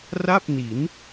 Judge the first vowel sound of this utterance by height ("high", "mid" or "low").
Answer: low